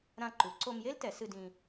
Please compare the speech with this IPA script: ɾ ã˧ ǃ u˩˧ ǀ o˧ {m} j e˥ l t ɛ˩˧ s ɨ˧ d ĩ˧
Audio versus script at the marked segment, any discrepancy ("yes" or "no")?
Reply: no